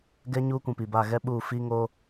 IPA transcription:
ɡɛ˦ ɲuː˦kʷũ˨pi˨ba˦˨ ɣɛ˦ɓuː˦˨ fi˦ ŋo˦

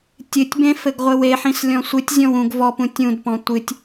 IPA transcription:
tʲɨtʲbẽ fɘɡʁʷɘweħĩs lʲɔ̃sʷɨtʲzʲɔ̃w ũɡ vɔpũ tʲũdpɔ̃ tʷɨtʲ

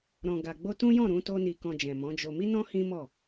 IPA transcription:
ɾɔ̃˨ɡa˨ ɡ͡bo˧tũ˦jɔ̃˦˨ ɾũ˨˦to˦ni˧ kɔ̃˧d͡ʒɛ̃˨mɔ̃˨˦d͡ʒo˧ mi˦nɔ̃˦ hĩ˦mɔ˦˨

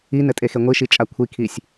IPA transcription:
inɘtʼexe ŋʷiʃit͡ʃʼa kʷʰikʰisʲ

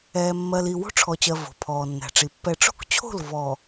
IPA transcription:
ɛː˨mːɜ˨li˨ wo̤˦ʈ͡ʂʰɔ˨t͡ɕɜ˨ vo̤˨pʰɔː˨nːæ̤˨ʈ͡ʂi˨ pːɛ˨ʈ͡ʂo̤˦kt͡ɕʰo̤˦˨l vɔ˨

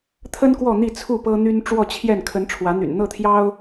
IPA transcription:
t̪ʰə˦n kwɔ˥˨n̪i˥˨t͡sʰu˥˨ pɤ˦n̪y˦n ʈ͡ʂwɔ˥˨t͡ɕʰjɛ˥˨n kʰə˨˦n ʈ͡ʂʰwä˨˦n̪y̰˨˩n n̪ɤ˥˨t̪ʰjɑ˦ʊ̯

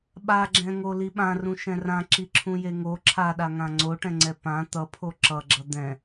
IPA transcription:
ɓaɡ͡ǁɛ̃ŋoli ɓãrũʃɛ̃ rãǁiǁʰũje ŋo ǁʰaɗaŋã ŋ͡ǀoʈɛ̃ŋ͡ǀɛ pã t̪ʌpʰo ǁʌɡ͡ǁʌ d̪ɛ̃

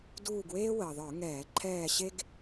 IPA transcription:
duː˦˨ɡweː˥ wəː˩ðˤə˞˧˩˧ŋɛː˧˩˧ ǃʰɛː˦˨ɕe˥ɡ

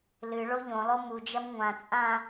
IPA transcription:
lɨ ɭoʎõ lˠomud͡ʒɐm ŋʷãt͡sʼã

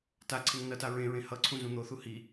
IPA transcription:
taǀʰeŋ nʌta ɹẽɹẽ hʌǀʰũ zũn̪oθu hi

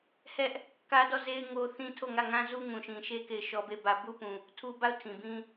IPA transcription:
hɛ˦ʔ | kä˦dɔ˦˨ze˦ɪ̯ ŋo˦θĩ˦tʰo˦˨ ŋä˦˨ŋã˦zu˦ ŋũ˨ʃĩ˨ʃe˦ ke˦˨ɪ̯ʃɔ˦be˦˨bä˦ bu˦pũ˨ | tʰu˦ba˦˨ʊ̯ tʰĩ˨bĩ˦

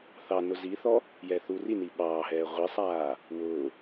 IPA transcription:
θɑ nʊziθɔ | jɛθurini ɓɑːɦɛː ʁʷisˤaː | wʊː

